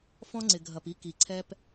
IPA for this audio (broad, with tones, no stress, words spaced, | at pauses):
fɔ̃˧ŋ͡ǀɪ˩ɡʱɐ˩p i˧ki˩ǀʰɛ˧p